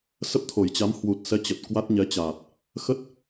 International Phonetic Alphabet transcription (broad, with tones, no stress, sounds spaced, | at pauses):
s ə˦˥ p̚ t̪ʰ o˨˩ j t͡ɕ a˨˦ m h w u˨˩ t̚ s ɛ˨˦ t͡ɕ ə˨˩ t̚ k w a˦˥ t̚ ɲ ɛ˨˦ t͡ɕ aː˨˩ t̚ | x ə˦˥ t̚